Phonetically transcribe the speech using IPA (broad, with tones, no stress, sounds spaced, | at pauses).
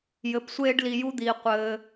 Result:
j ɘ˧ p sʷ eː˥ ɖ l i˧ j u˥ d̪ iː˧ qʷ ɘː˧